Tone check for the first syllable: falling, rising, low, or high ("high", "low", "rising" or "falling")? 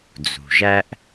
low